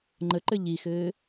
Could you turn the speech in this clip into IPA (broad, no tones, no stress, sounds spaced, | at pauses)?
ŋ͡ǃ ə ǃ ɘ ʎ i x ɘː